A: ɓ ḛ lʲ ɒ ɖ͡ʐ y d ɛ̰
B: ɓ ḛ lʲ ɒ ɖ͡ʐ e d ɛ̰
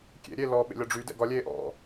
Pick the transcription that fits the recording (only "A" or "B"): A